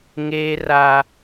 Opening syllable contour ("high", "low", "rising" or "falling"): high